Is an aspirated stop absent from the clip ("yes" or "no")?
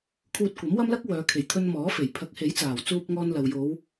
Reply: no